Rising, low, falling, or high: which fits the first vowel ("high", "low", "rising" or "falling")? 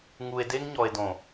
low